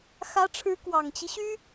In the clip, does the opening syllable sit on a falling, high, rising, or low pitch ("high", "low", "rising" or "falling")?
rising